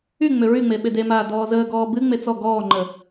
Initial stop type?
implosive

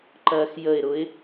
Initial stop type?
click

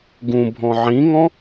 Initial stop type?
plain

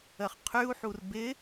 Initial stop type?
aspirated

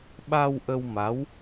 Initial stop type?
implosive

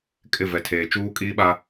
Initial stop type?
ejective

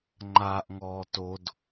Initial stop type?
click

